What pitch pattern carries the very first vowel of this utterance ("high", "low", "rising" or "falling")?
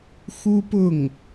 high